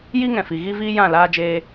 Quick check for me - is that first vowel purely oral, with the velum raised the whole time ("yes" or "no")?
yes